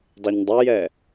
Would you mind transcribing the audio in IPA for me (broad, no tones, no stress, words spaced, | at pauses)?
dˤeɲdˤojɛ